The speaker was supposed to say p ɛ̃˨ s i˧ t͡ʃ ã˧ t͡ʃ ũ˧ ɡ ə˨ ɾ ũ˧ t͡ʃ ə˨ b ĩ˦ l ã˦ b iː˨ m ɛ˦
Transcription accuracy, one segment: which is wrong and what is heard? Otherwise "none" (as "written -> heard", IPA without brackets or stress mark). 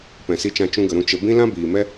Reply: none